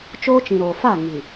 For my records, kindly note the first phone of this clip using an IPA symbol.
t͡ʃ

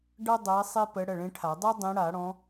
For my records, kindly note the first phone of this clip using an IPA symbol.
ɖ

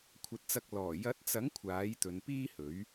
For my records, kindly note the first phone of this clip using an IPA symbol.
kʷʰ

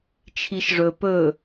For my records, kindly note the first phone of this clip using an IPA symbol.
t͡ʃʰ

